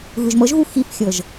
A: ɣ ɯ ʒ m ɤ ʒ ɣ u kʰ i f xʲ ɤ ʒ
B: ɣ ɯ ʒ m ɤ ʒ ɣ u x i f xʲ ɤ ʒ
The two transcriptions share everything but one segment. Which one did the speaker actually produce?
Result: B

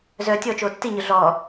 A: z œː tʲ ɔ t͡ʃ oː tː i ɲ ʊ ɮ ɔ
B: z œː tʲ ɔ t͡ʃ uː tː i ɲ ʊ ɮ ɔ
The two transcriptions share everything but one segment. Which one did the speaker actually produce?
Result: A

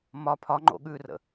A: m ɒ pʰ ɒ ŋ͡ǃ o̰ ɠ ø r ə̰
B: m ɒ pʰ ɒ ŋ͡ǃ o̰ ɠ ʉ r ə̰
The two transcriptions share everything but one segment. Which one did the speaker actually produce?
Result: B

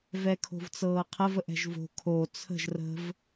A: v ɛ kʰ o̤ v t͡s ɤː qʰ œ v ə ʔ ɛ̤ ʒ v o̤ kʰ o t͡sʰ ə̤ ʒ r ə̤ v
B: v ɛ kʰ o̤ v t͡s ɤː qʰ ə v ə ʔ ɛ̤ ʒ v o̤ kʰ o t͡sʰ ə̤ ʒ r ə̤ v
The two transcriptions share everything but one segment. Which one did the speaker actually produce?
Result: B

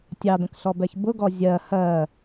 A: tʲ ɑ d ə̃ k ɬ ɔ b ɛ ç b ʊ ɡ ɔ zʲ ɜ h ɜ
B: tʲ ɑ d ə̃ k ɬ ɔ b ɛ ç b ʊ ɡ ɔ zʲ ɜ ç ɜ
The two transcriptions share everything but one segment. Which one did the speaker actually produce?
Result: A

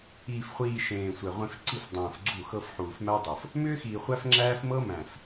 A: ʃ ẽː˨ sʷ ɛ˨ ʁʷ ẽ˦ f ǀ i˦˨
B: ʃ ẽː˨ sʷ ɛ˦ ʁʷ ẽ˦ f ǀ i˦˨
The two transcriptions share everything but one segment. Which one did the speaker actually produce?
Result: A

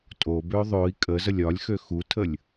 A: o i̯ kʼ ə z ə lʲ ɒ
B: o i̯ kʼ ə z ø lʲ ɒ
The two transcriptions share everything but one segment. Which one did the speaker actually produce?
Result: A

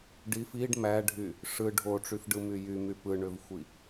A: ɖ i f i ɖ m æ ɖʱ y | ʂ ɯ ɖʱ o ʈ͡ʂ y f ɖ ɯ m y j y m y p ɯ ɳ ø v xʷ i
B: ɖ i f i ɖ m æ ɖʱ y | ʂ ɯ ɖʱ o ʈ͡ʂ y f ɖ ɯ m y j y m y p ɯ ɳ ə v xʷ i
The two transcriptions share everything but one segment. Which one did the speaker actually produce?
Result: A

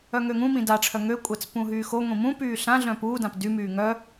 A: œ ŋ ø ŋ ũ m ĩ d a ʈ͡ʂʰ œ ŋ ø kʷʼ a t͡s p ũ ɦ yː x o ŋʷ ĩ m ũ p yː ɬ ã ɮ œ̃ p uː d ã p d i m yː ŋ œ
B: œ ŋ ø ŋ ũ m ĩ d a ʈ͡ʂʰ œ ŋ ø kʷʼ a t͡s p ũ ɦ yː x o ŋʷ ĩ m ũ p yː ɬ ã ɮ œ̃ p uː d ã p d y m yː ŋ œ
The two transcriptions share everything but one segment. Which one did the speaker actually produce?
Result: B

